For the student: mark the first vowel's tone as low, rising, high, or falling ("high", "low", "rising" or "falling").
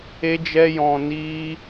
high